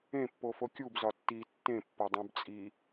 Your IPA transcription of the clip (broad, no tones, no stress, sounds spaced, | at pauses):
ẽ pː o f o kʲ u b z ɒ tː i tː ẽ pː o dˤ ũ b t͡sʼ i